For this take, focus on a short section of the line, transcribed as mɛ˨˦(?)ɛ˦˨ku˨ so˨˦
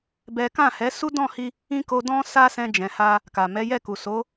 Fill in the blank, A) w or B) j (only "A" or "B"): B